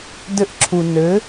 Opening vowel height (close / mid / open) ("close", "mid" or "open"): mid